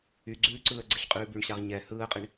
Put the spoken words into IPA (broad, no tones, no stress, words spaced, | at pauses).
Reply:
yɡ͡ǀʉːǀɯːə̯ ɡ͡ǀɪɬqʼʉːbyɳɕaʁ ɲɛ hɯːə̯qʼɪɳ